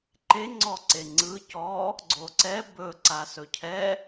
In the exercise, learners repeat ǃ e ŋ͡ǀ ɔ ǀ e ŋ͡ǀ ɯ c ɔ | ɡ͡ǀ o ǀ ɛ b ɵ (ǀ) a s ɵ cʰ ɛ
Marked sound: correct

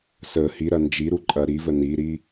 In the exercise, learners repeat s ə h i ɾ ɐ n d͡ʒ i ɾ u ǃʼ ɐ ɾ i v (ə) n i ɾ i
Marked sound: correct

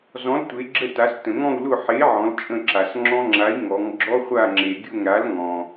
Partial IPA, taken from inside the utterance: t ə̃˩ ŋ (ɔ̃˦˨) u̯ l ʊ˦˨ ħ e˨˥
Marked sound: correct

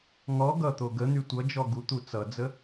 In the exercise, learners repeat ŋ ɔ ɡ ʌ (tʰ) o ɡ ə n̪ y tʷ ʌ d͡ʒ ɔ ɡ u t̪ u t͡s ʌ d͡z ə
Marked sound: incorrect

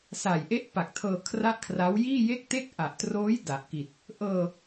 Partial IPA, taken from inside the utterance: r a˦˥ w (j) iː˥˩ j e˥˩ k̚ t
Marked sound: correct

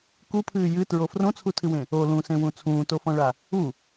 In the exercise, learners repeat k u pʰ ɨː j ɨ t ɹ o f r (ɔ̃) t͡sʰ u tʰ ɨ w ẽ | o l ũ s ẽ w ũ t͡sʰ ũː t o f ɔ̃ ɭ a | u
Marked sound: incorrect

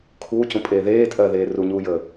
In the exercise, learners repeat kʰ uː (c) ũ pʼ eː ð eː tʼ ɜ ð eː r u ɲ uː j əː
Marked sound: correct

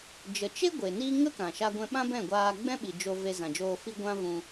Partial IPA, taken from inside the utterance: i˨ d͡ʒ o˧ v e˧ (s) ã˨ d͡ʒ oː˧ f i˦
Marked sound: incorrect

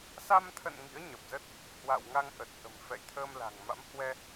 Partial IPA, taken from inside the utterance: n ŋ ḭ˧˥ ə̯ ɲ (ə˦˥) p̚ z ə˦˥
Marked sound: incorrect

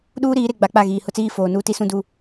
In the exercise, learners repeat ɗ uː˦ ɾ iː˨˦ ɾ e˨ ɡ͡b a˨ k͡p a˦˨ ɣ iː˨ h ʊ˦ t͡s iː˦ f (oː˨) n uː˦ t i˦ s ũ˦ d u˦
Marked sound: correct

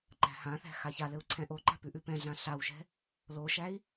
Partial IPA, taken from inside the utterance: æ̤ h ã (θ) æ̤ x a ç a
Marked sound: correct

